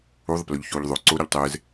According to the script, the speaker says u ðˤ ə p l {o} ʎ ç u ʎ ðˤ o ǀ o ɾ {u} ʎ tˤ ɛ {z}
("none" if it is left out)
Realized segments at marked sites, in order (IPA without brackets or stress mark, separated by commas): o, u, z